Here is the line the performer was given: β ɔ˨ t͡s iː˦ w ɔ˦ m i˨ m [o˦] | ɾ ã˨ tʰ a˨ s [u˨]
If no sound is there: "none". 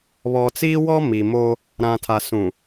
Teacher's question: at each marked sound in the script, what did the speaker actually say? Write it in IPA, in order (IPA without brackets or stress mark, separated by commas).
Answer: o˦, ũ˨